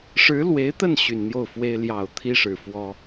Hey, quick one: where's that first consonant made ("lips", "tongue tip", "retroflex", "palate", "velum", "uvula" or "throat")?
retroflex